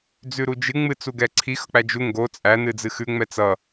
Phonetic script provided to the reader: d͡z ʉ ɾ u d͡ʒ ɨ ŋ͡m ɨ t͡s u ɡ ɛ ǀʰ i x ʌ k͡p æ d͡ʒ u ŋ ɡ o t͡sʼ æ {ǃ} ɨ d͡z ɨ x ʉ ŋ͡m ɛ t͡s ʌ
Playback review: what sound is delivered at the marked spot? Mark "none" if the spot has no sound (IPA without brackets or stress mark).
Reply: n